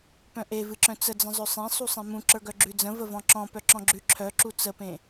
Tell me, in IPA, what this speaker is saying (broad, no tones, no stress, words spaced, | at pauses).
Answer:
pœ̃ʔevɨǁœ̃ t͡səd͡zə̃ zˤœsˤẽ sˤusˤẽmũ ǁə˞ɡœɡ͡ǁʉd͡zə̃ vəvɔ̃ǁɔ̃ pœǁɔ̃ɡ͡ǁʉ ǁʰœǁu t͡səpẽ